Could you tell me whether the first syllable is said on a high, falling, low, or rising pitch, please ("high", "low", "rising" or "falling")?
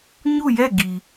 falling